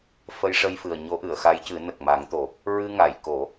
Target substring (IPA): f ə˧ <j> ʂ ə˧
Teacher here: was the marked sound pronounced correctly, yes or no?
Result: yes